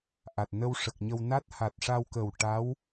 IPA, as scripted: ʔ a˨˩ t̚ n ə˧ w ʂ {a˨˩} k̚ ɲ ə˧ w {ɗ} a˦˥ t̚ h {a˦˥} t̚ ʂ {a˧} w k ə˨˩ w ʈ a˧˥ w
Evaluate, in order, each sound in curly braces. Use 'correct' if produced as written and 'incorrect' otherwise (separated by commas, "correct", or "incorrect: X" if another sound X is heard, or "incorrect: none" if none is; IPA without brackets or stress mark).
incorrect: ə˨˩, incorrect: n, incorrect: a˨˩, correct